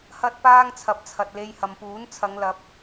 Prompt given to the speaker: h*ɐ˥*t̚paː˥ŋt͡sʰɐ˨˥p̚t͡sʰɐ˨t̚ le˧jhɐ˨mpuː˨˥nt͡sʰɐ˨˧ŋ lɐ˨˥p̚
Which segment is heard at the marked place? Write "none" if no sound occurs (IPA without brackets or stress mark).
ɐ˥